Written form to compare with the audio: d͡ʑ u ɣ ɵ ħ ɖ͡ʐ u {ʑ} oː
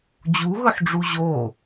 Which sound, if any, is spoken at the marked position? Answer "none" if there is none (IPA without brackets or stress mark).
ʑ